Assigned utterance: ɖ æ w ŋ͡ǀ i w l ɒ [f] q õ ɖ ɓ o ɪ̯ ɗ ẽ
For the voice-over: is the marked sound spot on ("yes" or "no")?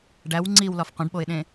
yes